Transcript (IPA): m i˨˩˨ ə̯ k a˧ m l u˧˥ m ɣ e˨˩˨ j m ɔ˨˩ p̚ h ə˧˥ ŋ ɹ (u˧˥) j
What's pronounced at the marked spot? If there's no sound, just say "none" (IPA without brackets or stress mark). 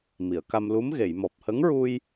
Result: u˧